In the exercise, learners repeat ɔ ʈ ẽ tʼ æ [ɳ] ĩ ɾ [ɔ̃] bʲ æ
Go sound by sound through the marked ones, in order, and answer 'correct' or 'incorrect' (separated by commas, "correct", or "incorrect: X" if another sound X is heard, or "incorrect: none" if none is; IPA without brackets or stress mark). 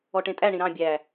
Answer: correct, incorrect: ɑ̃